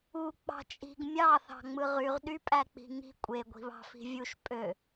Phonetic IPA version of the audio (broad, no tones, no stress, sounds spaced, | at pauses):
u k͡p ɑ̤ t͡ʃʼ i̤ ɡ mʲ ɑ θ ɑ̤ ŋ͡m ɯ ʁ y ʁ ɗ y pʼ æ k͡p i̤ ŋ i̤ kʷʼ e ɡʷ i̤ β ɑ̤ f i̤ vʲ u ʃ pʼ ø